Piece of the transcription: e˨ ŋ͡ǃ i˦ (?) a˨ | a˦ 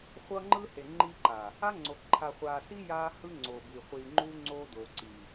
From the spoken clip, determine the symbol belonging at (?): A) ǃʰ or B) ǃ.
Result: B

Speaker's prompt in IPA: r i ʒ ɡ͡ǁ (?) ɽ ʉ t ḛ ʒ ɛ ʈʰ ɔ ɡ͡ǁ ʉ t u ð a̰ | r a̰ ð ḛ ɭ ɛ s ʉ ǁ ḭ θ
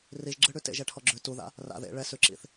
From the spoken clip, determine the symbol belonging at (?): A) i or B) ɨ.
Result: B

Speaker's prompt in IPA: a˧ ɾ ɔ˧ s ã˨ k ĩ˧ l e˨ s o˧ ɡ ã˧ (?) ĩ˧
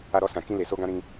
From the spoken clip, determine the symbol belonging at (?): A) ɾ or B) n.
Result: A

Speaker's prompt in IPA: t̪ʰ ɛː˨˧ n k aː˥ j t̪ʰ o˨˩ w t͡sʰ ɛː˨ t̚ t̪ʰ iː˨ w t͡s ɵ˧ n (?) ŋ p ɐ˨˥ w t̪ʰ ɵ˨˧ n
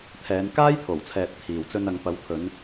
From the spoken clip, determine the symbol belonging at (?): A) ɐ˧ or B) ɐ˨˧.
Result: B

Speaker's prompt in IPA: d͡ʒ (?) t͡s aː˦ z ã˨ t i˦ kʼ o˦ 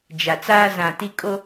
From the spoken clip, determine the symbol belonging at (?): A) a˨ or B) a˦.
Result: A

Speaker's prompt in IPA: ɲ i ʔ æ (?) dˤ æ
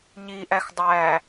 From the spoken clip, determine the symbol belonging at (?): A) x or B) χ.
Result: A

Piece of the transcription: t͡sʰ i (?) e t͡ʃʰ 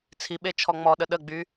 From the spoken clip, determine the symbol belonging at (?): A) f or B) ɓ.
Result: B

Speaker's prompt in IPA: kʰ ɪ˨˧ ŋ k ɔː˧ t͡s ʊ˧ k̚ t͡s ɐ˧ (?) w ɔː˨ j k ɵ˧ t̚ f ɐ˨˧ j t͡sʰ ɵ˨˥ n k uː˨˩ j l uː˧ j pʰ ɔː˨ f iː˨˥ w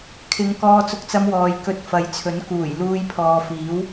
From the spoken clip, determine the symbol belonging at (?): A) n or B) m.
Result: B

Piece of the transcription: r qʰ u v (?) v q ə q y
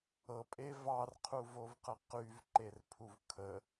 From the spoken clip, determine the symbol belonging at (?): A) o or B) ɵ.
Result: A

